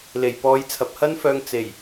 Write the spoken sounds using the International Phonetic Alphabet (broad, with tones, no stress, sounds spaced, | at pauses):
l e˨˩ j p ɔː˨˧ j t͡sʰ ɐ˨ p̚ h ɐ˥ n f œː˧ ŋ t͡s e˨˩ j